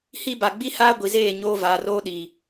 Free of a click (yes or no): yes